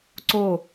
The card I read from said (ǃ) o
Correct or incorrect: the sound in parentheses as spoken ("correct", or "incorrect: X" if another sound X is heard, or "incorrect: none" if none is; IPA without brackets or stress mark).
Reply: incorrect: ǀ